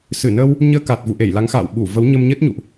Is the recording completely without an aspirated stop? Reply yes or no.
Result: yes